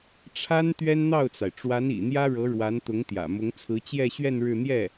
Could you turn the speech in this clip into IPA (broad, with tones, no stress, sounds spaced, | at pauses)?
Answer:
ʈ͡ʂʰ a˥ n t̪ ɥ ɛ˥ n n̪ ɑ˥˩ ʊ̯ t͡s a˩ ɪ̯ ʈ͡ʂ w a˧˥ n ḭ˨˩ n̪ j ä˥ ɻ ɤ˧˥ ɻ w a˧˥ n t̪ ʊ˧˥ ŋ t̪ j ä̰˨˩ m ʊ˧˥ ŋ t͡sʰ ɹ̩˧˥ t͡ɕ j ɛ˥˧ ɕ ɥ ɛ˥˧ n ɻ ɻ̩˥˧ n̪ j ɛ˥˩